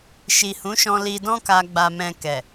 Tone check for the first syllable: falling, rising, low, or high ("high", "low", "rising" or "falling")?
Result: low